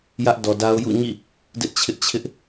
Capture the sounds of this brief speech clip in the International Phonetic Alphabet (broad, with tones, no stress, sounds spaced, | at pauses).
j ä˦ ʔ d ɔ˨ d a˦ ʊ̯ j ṵ˦˨ ɲ ḭ˦˨ | d ɪ˦ ʔ t͡ɕʰ ɪ˦ ʔ t͡ɕʰ ɪ˦ ʔ